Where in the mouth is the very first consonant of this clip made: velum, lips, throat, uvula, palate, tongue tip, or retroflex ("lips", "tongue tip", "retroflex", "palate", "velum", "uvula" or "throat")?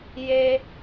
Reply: palate